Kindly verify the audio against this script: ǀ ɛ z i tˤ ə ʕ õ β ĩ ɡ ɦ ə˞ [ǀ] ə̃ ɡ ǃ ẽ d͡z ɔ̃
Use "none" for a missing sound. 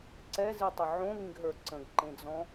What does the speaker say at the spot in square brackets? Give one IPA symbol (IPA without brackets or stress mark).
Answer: ǀ